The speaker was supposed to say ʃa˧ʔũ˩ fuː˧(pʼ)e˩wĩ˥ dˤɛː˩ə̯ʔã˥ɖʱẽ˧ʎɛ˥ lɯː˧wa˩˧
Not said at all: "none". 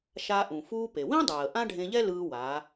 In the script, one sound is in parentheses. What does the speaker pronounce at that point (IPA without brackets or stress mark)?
p